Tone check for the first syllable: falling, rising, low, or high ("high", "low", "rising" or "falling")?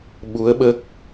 rising